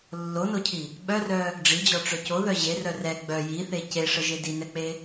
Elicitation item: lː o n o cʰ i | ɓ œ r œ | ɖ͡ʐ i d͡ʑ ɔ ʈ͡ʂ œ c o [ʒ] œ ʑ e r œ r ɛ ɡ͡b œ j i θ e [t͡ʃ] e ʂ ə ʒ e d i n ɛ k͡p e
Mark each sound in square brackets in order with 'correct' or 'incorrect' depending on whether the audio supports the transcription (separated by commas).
incorrect, incorrect